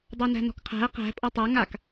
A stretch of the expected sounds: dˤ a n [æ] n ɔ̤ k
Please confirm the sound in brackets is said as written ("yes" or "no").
no